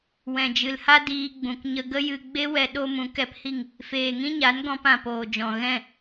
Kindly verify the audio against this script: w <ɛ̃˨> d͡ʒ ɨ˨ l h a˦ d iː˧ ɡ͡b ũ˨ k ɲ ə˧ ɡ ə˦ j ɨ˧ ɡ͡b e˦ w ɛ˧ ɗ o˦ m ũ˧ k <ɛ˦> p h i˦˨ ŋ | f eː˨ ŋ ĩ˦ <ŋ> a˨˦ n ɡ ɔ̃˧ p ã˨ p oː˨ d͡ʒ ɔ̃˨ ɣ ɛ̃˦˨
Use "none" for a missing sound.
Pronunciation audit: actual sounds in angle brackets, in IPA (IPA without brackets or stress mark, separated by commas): ɛ̃˨, ɛ˦, ɲ